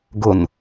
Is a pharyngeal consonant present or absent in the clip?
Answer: absent